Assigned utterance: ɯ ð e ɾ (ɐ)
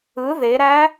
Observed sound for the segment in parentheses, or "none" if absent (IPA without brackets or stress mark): æ